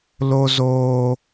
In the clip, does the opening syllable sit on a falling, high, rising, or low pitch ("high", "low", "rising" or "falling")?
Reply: high